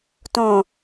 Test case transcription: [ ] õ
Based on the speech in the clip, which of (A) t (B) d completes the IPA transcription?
A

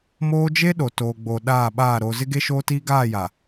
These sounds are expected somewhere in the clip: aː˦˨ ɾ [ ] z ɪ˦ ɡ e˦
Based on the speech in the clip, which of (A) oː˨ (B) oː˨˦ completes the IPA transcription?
A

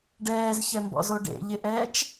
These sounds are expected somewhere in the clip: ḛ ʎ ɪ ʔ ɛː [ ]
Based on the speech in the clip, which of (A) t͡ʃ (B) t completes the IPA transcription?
A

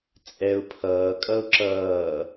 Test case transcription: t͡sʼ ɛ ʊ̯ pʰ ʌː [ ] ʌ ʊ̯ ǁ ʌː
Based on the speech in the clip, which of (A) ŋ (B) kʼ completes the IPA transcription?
B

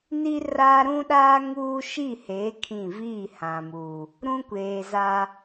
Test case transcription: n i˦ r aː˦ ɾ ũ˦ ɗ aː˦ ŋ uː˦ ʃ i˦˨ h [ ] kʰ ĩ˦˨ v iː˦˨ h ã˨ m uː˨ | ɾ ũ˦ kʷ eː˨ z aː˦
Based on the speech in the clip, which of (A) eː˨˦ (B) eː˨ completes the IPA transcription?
A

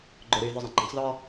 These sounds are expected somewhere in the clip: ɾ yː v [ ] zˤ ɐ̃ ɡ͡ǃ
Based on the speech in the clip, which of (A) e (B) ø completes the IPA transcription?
B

